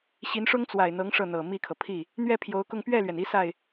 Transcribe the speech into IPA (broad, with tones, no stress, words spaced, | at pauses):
ɕi˧˥nʂʊ˥ŋt͡swa˨˩ɪ̯n̪ɤ˧˥ŋ ʂɤ˥˩n̪ɤ˨˩ mi˥˩kʰɤ˩ pʰi˥˩ | n̪ɥɛ˥˩pʰjo˧˥ʊ̯kʊ˥˧ŋ pɥɛ˥˩lɥɛ˩ni˧˥ sa˥˩ɪ̯